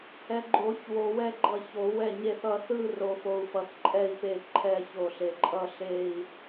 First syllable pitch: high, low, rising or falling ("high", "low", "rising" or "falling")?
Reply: low